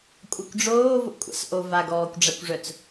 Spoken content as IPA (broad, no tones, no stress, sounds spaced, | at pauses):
kʷʼ a kʷ ɖ͡ʐ oː v o̰ kʷʼ a̰ s ʔ o v a ɡ ɔː kʷ ɖ͡ʐ a kʷ ʐ œ t͡s